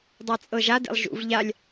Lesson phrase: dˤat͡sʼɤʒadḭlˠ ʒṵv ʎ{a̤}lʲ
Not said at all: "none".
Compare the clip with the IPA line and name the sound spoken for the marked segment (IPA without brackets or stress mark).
a